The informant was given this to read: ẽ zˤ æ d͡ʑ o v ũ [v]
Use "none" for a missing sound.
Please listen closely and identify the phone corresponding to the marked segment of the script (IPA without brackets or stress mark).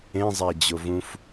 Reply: f